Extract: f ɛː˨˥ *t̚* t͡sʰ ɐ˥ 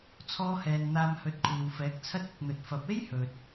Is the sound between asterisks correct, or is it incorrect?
incorrect